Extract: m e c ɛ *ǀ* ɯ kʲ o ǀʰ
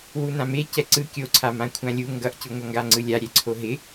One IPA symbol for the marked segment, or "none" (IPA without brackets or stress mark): ǀ